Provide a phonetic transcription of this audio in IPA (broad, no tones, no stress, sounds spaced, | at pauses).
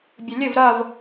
bʲ ɘ lʲ ɘ v ɾ ɐ v